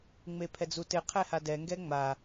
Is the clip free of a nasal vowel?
yes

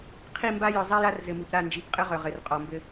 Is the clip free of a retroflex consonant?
yes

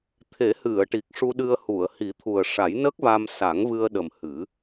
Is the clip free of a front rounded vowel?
yes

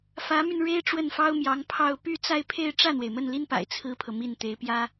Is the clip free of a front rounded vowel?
no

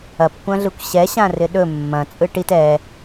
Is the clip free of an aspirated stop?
yes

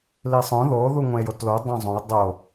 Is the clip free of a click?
yes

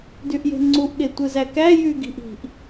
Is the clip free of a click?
no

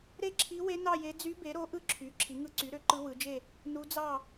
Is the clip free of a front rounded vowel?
no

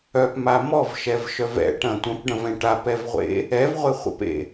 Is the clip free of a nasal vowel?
no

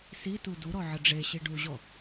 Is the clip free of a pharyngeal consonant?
no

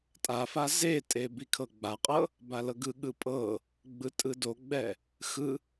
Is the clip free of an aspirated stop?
no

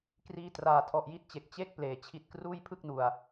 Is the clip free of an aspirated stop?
no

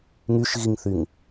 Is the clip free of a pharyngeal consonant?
yes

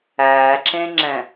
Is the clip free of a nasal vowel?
no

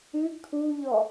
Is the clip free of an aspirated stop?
no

